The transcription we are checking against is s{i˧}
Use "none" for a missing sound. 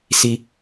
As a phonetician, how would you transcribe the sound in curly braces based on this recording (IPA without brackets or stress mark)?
i˧